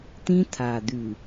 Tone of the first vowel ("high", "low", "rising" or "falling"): high